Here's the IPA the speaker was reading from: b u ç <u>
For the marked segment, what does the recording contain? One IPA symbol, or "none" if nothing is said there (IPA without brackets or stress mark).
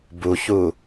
u